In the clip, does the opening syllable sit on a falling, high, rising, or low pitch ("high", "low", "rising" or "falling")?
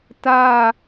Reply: falling